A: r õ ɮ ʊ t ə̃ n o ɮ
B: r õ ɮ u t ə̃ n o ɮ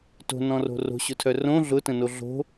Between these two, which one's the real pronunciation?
A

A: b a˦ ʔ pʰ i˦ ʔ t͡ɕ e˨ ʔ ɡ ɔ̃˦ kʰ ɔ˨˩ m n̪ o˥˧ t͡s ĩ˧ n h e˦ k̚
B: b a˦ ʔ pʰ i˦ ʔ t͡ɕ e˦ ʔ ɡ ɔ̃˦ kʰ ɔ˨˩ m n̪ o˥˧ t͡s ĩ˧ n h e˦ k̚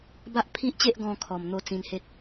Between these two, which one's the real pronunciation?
B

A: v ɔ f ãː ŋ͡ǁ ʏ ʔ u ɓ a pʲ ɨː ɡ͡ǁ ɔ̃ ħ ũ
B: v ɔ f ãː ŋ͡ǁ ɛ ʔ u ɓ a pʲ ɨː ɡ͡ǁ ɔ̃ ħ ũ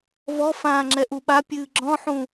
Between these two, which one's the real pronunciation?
B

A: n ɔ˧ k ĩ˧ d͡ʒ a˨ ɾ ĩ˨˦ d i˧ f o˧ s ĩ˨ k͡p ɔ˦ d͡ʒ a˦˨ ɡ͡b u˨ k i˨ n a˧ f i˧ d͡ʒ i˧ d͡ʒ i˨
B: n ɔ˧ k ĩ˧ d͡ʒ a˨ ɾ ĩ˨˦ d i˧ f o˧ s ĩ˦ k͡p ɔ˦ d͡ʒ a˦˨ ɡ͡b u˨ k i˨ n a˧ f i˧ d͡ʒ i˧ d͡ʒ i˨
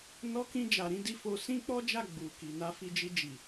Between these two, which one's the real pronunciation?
B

